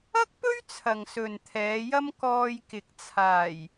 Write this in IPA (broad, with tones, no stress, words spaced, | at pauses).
ɐ˥k̚pɵ˥ɥ t͡sʰɐ˨ŋsɵ˨nt̪ʰɛː˨˧jɐ˥m kɔː˧jkɪ˨k̚ t͡sʰaː˨˩j